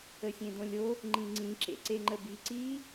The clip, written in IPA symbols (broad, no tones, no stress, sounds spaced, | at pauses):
ə sʲ ẽ d õ lʲ o | ŋ͡ǃ ĩ ŋ͡ǀ ĩ ǁ ḛ ǀ e ŋ͡ǃ ə b i ǀ i